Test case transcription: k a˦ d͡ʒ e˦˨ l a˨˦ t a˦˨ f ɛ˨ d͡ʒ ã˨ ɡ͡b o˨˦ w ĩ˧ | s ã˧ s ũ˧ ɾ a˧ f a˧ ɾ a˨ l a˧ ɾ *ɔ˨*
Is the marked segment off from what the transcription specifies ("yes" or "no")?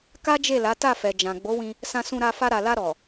no